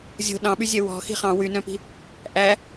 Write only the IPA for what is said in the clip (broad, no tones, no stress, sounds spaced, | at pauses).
zʲ o̤ ɗ ɑ̃ ɓ y zʲ ɛ w ɔ̤ x i̤ χ ɑ̃ w y n œ̃ p i̤ | ʔ æ